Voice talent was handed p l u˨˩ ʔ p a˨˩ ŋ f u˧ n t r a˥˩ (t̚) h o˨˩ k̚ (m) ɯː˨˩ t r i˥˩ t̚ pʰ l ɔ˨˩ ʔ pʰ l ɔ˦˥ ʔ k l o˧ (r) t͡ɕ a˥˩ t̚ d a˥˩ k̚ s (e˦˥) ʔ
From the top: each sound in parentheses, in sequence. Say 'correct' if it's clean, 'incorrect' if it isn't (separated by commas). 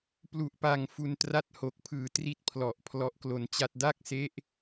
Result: correct, incorrect, incorrect, correct